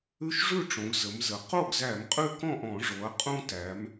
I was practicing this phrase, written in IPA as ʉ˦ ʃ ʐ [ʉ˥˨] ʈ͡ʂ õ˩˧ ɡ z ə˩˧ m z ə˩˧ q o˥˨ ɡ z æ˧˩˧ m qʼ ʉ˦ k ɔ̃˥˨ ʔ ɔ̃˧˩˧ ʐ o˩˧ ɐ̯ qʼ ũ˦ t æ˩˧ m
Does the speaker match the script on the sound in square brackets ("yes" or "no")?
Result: yes